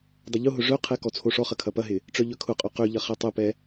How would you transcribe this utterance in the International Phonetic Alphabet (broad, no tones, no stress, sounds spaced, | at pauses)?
dˤ ʊ ʎ ʊ ɦ ʊ ʐ œ qʰ ɛ k ɔ t͡sʰ o ʂ ɔ χ ɐ kʰ ɐ p ɐ ɦ ɪ | ʈ͡ʂ œ ʎ œ kʰ ʊ qʼ œ q ø ʎ ɐ χ ɛ tˤ ʊ p ɛ